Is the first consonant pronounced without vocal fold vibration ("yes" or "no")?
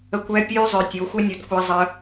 yes